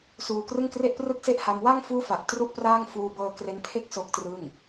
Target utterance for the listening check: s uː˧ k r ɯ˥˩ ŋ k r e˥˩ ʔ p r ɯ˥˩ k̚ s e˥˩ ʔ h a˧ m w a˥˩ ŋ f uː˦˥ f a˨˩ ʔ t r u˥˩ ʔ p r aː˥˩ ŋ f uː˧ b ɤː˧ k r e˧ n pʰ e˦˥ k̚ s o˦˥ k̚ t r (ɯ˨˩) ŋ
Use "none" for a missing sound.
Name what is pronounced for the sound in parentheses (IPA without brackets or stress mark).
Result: ɯ˥˩